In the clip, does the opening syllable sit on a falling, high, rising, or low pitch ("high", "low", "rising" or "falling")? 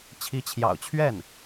rising